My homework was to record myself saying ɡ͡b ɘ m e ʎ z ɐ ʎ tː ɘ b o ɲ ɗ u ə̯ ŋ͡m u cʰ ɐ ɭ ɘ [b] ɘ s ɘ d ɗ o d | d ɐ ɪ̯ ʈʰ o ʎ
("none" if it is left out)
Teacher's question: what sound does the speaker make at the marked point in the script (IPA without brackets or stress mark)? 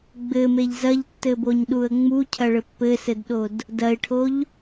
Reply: pː